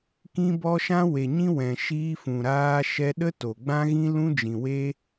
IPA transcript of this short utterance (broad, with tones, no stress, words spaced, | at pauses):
kĩ˦bɔ˦ ʃã˦we˨ɲĩ˦ wɛ̃˨ʃiː˧fũ˨ɾaː˧ ʃɛ˧ɗə˦to˨ ɡ͡bã˦ɣĩ˦lũ˦ d͡ʒĩ˨weː˦